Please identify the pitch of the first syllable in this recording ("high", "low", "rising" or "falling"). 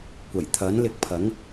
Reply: low